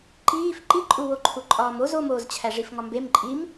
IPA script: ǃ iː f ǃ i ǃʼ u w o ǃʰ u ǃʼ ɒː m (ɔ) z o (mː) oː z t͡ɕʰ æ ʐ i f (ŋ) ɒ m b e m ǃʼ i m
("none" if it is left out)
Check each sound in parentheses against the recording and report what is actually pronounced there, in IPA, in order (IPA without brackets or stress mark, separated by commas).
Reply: o, m, ŋ